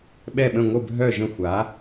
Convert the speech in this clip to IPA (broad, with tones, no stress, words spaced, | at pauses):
ɓɛ˧˩ɓə̃˧˩ ŋʷə˧˩bʱœ˧˩ʒə̃˧˩xʷa˩˧